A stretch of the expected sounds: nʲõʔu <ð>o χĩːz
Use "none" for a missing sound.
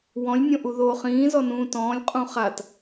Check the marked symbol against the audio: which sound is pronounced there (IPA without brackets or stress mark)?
ð